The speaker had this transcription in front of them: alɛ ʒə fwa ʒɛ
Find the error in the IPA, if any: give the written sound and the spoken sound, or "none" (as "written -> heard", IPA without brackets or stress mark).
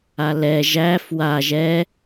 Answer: ə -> æ